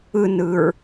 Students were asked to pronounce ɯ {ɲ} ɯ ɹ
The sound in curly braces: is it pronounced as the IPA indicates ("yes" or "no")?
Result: no